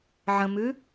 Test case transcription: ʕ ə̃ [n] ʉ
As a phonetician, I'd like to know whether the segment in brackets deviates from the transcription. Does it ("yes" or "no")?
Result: yes